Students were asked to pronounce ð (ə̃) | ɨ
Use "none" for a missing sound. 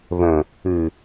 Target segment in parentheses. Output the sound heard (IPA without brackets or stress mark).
ə̃